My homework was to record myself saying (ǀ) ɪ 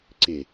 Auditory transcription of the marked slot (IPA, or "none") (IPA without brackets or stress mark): ǀ